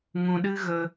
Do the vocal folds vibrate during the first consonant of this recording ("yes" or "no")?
yes